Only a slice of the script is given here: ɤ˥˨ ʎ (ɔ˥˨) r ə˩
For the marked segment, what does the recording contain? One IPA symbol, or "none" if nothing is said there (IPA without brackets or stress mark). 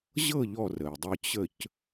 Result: ɔ˥˨